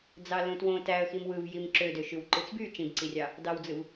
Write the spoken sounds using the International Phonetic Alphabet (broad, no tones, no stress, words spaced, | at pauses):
d͡zɑlũtwõ tæə̯ ximwɯv jimǁødøʃyw ǃɯt͡sby t͡ʃĩbǀirʲɑ | dɑwd͡zɯv